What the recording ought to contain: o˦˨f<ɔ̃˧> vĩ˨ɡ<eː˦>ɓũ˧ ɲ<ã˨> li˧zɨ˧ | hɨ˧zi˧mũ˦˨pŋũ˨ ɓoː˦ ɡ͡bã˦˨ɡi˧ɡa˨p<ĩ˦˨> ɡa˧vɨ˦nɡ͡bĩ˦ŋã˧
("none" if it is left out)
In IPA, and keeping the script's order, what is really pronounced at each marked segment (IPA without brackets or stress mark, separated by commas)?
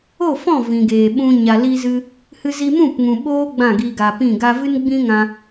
ɔ̃˦˨, eː˨, a˨, ĩ˦˨